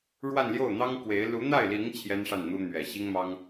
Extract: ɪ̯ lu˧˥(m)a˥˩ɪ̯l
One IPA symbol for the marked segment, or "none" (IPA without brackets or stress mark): n̪